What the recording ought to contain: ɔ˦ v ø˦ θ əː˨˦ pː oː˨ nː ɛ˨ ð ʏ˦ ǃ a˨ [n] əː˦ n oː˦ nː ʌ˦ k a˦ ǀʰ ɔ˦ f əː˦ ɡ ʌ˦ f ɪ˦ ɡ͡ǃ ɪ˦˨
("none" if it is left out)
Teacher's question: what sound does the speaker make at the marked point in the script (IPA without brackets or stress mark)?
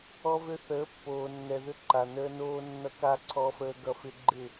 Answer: n